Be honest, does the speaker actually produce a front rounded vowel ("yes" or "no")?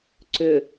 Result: yes